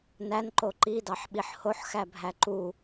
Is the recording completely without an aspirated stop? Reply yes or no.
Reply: yes